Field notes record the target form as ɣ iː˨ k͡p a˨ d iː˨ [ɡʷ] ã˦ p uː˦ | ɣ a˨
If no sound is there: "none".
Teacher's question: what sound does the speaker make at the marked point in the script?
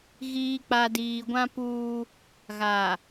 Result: ɡʷ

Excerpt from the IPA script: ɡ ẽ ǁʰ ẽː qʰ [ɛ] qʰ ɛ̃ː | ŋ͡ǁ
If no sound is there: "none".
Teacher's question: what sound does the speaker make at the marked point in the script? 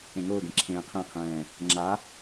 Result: ɛ̃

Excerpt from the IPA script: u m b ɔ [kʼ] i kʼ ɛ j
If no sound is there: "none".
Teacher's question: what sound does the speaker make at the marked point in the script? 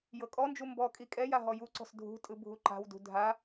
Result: kʼ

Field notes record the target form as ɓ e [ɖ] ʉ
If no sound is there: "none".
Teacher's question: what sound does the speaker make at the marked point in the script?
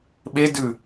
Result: d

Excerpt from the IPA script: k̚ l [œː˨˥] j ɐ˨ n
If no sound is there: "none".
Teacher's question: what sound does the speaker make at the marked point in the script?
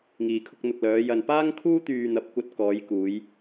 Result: œː˨˧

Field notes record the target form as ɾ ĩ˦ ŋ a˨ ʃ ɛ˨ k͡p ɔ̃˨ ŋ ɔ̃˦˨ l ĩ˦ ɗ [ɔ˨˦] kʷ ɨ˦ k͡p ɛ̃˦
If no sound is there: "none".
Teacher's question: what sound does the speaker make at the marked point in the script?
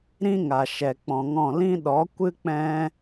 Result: ɔ˨˦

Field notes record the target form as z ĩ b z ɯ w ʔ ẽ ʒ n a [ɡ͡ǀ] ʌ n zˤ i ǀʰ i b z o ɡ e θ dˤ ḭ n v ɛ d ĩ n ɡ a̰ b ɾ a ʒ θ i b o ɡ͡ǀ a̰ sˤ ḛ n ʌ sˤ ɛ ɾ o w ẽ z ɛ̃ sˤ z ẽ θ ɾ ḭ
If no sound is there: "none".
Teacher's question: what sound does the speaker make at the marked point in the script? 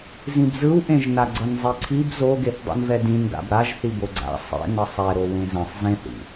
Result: ɡ͡ǀ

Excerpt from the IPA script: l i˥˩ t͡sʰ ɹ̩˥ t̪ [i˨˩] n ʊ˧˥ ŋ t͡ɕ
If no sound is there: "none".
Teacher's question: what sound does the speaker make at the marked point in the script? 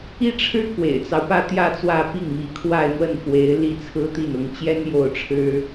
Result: i˥˩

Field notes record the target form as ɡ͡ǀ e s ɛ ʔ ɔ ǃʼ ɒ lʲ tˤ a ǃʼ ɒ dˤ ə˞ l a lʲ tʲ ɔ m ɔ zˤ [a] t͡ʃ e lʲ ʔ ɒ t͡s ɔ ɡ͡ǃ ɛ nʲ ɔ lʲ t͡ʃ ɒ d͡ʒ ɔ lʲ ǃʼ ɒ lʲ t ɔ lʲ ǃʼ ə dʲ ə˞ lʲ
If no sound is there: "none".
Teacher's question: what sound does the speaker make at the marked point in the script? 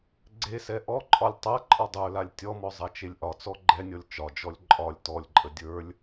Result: a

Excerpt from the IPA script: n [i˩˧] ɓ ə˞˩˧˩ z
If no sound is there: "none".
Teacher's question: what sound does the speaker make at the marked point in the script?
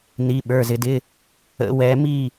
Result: i˩˧˩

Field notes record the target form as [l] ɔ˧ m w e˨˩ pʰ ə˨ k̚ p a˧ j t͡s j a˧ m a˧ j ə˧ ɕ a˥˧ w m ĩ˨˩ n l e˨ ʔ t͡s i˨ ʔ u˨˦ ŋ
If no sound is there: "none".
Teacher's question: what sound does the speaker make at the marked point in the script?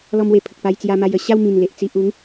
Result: l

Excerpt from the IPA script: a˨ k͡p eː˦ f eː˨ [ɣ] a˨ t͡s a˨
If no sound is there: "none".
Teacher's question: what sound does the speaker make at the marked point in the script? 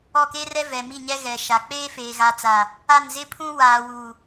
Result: ɣ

